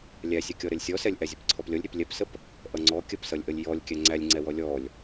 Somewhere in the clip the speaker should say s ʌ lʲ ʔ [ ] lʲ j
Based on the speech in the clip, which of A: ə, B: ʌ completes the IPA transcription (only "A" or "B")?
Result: A